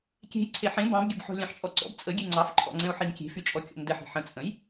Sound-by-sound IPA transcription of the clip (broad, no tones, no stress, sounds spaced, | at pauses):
kʲ e̤ j ǀʰ e ħ ẽ b ɑ̃ b ɡʲ ə b ħ ɔ̤ lʲ ɑ̃ ħ t͡ʃʼ ɔ ǀ ɔ̰ b t͡sʼ ə ɡʲ e ŋ͡ǀ ɑ f ǃʰ ɔ̰ ŋ͡ǀ ɛ̃ o̯ ħ i n kʲ e̤ f y t͡ʃʼ ɔ kʲ ɔ̰ n d ɛ ħ e̤ ħ ə̃ t͡sʼ ə̃ j